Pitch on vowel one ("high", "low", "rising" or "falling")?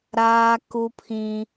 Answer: high